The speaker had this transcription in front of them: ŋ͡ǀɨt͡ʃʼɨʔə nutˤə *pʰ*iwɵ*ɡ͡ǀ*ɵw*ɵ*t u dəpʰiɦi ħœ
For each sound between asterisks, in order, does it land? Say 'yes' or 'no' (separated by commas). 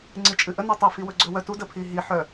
no, yes, no